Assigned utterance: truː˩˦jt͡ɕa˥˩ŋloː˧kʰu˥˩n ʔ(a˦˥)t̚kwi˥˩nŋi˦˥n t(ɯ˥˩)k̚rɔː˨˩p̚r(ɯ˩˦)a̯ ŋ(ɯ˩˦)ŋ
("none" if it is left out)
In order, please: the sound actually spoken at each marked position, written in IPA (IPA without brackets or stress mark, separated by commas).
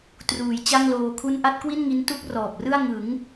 a˥˩, u˥˩, ɯ˥˩, ɯ˩˦